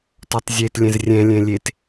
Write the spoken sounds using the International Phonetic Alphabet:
t ɔ tˤ zʲ e t lʲ ɛ̃ z rʲ ɛ̃ lʲ ɛ̃ lʲ e t

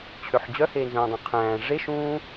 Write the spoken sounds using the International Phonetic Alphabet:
t͡ɕʰ ø ħ d͡ʑ œ h eː n z œ̃ː dˤ œ̃ qʰ æ̃ː ʐ e ʃ ũː

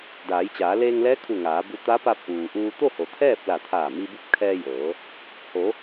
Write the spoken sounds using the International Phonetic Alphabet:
d aː˩˧ j t͡ɕ aː˩˧ l eː˧ ŋ l ɛː˧˥ kʰ u˧˩ ŋ aː˩˧ b u˧ t̪ a˧˥ p a˧ p̚ ʔ uː˩ ʔ uː˧ t̪ o˥˨ h o˩ t̪ʰ ɛː˥˨ p̚ l a˧˩ t̪ʰ aː˧˩ m i˧ b u˧˥ p̚ kʰ ɛː˧ j ɤː˩˧ | h o˩˧

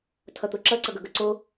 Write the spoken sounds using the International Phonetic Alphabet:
tʰ ʌ t̪ o ǁ ʌ ǀ ʌ ɡ ʌ ɡ ʌ ǀ o

